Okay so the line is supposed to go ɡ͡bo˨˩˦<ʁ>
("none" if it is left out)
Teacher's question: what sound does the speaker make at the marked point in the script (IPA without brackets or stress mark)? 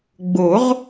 ʁ